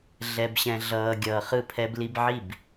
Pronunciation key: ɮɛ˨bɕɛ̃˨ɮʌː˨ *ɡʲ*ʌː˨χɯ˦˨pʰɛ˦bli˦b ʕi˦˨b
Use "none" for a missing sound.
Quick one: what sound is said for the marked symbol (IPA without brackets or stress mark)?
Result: ɡʲ